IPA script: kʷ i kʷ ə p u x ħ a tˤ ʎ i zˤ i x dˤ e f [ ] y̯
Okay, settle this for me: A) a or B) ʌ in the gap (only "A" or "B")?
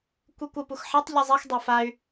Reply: A